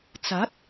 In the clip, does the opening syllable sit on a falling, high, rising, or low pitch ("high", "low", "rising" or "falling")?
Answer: rising